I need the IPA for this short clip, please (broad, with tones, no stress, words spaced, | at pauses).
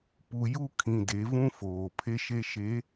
pu˨ju˦kʰĩ˨ de˨˦vũ˦foː˨ pʰe˦ʃe˦ ʃe˨˦